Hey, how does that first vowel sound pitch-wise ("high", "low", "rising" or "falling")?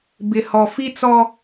low